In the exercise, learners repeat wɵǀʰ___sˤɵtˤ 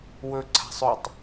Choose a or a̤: a̤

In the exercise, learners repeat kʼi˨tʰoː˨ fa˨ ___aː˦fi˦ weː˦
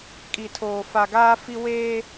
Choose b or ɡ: ɡ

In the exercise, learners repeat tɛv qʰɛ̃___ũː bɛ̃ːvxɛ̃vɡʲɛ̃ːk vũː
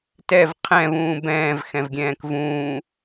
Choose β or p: β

